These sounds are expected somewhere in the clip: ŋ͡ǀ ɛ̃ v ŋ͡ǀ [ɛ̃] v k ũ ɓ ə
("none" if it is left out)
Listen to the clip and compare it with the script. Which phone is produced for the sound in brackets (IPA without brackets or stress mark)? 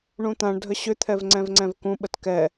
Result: ɛ̃